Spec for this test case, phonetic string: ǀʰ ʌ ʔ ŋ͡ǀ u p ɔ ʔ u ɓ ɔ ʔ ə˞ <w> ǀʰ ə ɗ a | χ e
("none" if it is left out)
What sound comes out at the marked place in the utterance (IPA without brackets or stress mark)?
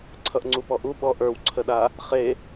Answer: w